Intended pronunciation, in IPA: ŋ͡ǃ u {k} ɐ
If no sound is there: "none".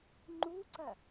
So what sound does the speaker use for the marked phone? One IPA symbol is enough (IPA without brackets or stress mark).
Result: ǀ